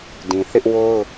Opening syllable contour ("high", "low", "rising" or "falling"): low